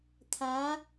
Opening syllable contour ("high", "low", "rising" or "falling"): rising